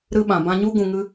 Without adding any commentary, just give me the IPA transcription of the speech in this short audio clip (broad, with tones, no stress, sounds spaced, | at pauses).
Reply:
ɾ ɨ˧ ɓ ã˨ b ã˧ ɲ u˦ ɡ ũ˧ ŋ ɨ˦